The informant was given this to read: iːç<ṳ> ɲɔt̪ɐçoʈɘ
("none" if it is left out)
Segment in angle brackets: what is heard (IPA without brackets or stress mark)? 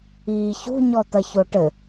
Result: ṳ